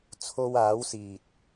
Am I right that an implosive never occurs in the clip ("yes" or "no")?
yes